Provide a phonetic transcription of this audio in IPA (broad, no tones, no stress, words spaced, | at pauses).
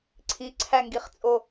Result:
ǀʰiǀʰæŋɡiχt͡sʼo